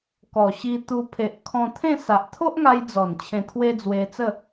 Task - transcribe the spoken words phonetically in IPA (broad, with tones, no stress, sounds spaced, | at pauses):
k ɔ˨˩ ɕ i˧ t̪ u˧ pʰ e˨ ʔ kʰ ɔ̃˧ t̪ʰ ẽ˥˧ s a˨ ʔ t̪ʰ o˦ ʔ ŋ a˧ j d͡z ɔ˨˩ n t͡ɕʰ ẽ˧ t̪ʰ w e˦ d͡z w e˧ t͡s ə˥˧